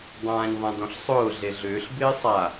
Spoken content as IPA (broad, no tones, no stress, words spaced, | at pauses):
dˤãːɲðˤãdɔ̃ɬsˤʊː ɮeɮʏːɬ bɪːsˤa